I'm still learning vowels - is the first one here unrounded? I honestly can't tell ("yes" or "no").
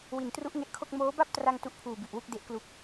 yes